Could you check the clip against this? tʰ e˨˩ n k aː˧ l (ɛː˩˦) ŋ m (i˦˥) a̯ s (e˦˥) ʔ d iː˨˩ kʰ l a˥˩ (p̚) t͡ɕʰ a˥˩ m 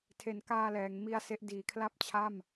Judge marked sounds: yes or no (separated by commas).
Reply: yes, yes, yes, yes